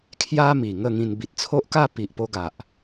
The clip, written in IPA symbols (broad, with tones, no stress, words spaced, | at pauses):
kʰja˦mi˨˩ ŋə˥˧ŋĩ˧n bi˨t̚t͡sʰo˦ʔka˥˧ pi˨ʔpo˧ ɡa˨ʔ